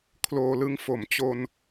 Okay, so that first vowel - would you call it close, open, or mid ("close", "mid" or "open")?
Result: mid